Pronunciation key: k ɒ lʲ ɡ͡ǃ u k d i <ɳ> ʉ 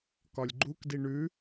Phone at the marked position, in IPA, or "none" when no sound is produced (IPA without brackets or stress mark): ɳ